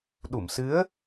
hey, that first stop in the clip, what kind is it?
implosive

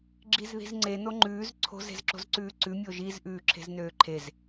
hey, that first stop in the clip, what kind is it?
click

